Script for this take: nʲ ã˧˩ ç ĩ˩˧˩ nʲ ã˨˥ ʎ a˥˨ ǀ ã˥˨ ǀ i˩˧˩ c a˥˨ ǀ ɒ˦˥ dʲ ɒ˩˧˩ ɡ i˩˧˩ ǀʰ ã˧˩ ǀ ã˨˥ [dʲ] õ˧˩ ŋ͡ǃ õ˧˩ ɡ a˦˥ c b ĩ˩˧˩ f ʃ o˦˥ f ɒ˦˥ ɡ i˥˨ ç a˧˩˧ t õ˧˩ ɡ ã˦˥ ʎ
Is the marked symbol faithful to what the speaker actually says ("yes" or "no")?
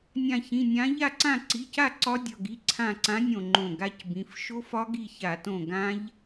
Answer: no